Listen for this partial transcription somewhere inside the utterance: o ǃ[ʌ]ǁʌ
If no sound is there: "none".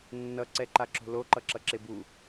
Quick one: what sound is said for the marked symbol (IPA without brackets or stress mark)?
ʌ